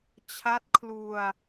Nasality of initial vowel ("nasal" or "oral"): oral